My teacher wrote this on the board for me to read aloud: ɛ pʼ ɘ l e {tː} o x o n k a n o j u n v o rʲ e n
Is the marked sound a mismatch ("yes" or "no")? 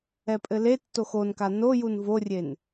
no